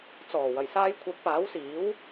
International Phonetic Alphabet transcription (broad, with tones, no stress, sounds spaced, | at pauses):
t͡s ɔː˨˩ w ɐ˨˩ j s aː˧ j kʷʰ ɐ˨˥ k̚ p aː˨˥ w s iː˨˥ w